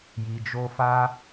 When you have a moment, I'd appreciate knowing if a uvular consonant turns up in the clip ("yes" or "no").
no